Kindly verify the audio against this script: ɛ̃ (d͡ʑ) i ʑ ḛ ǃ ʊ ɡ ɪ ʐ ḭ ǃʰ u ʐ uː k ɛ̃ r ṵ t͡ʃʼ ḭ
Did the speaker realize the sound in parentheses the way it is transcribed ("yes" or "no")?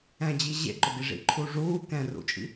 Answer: yes